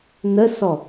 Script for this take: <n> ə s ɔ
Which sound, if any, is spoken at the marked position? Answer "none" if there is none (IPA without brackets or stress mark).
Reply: n